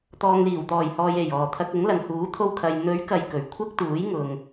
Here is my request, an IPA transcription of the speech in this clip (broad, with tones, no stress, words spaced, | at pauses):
t̪ɔː˨ŋliː˨˩wt̪ɔː˨˩jhɔː˨j e˨˩j ɔː˨˩ t̪ʰɐ˧k̚ ʊ˨˥ŋlɐ˨ŋhuː˨˥ t̪ʰo˧wkʰɐ˨j n̪ɵ˨˥ɥkɐ˨j kɵ˨ɥkʷʰɐ˥k̚ t̪uː˨˥jŋʊ˨ŋ